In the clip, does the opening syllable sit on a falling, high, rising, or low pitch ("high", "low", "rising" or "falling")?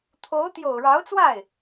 rising